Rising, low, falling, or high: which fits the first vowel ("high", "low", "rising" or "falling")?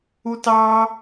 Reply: high